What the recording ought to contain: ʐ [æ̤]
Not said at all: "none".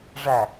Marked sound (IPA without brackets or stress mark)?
æ